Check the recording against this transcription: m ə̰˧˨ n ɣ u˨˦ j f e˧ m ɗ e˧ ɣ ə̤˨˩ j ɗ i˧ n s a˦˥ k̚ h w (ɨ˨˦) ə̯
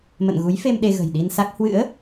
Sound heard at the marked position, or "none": ɨ̰˧˥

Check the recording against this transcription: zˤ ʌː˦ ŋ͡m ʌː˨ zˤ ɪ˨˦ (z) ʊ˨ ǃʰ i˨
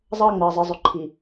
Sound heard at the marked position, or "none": zˤ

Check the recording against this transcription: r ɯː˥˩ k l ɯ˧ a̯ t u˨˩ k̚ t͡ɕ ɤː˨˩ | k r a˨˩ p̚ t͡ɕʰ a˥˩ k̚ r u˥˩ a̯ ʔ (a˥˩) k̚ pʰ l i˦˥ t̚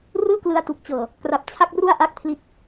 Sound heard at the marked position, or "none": a˥˩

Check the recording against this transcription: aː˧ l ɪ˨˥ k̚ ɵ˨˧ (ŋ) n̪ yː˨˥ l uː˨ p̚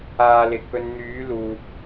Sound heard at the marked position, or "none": n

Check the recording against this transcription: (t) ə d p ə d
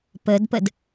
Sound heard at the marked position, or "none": p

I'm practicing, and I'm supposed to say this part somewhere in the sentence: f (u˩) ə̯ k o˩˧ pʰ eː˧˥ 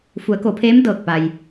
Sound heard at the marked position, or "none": u˩˧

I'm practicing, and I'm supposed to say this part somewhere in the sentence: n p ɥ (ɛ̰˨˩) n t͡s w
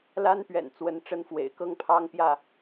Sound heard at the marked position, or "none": ɛ̰˨˩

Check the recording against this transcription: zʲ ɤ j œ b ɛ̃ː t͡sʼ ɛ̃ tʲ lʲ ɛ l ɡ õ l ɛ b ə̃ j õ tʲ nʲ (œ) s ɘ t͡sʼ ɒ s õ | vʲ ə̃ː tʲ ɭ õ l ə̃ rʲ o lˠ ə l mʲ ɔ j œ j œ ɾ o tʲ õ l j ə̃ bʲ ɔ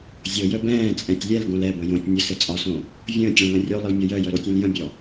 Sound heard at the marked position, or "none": ə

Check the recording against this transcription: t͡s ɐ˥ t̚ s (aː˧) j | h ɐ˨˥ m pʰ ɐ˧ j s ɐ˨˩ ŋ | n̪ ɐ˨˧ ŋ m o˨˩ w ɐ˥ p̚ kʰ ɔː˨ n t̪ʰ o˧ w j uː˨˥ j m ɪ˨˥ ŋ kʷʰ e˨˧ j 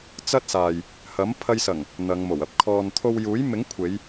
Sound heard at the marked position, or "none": aː˨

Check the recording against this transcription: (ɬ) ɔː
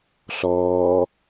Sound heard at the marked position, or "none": ɬ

